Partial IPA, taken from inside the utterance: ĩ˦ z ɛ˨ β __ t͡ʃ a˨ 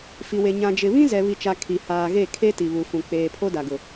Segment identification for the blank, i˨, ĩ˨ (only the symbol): i˨